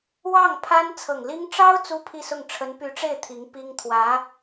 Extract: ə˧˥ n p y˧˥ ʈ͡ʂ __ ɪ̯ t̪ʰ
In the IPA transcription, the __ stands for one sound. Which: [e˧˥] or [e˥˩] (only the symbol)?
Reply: e˥˩